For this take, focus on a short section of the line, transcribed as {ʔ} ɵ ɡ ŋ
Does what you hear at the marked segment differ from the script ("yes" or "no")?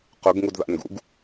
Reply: yes